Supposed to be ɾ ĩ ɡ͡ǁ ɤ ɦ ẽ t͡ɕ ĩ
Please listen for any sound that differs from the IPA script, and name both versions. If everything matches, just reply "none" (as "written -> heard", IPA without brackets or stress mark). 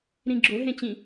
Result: ɤ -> o